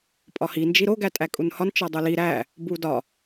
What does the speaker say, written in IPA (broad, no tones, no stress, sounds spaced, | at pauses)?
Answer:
pʼ ɒ h i n d͡ʒ i ɾ o ɡ æ tʼ æ kʼ u n h ɒ n t͡ʃ ɒ dˤ o l i ɾ æ | b u d ɒ